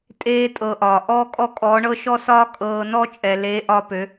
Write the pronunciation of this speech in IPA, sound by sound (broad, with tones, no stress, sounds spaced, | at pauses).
tʼ eː˧ tʼ ɤ˨ ʔ ɒː˨ ʔ ɔː˦ kʼ ɔ˦ kʼ ɔː˨˦ ɳ ɤ˦ ʃ ɔ˦ s ɒː˦ kʼ ɤː˧ n ɔ˦ t͡ʃʼ ɛ˨ l eː˨˦ ʔ ɒ˧ p ø˨˦